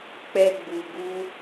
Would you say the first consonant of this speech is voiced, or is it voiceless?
voiceless